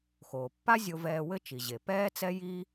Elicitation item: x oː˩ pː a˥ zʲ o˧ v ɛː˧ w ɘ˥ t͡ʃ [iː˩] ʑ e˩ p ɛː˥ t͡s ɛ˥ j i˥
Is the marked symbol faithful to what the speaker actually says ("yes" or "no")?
no